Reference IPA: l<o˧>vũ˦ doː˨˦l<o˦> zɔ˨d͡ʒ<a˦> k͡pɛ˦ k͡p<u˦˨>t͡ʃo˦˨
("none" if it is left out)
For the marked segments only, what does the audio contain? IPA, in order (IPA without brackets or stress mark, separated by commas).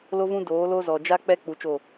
o˦, o˦, a˦, u˧